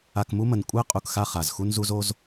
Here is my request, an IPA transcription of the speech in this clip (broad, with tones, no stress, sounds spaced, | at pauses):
a˧ k m u˦ m ə˨ n kʷʼ ɛ˦ qʼ u˧ k x a˦ χ a˨ z x u˦ n z u˦ z o˦ z